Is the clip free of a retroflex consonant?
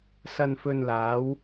yes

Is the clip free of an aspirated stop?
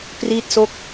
yes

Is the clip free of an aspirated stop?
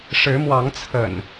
no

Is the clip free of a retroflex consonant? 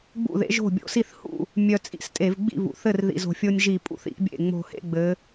yes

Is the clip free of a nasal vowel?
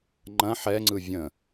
no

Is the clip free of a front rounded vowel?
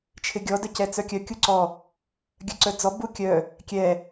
no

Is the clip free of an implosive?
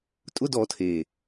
yes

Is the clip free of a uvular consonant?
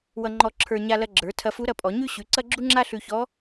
yes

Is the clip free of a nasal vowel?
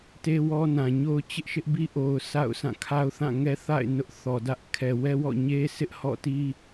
no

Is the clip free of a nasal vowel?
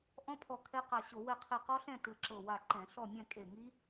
no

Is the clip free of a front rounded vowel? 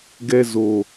yes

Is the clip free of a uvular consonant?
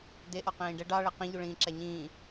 no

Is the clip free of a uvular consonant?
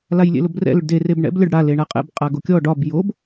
no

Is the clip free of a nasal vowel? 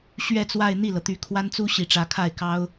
yes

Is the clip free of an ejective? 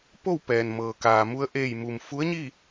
yes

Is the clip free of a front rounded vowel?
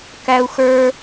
yes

